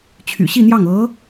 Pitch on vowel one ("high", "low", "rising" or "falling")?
low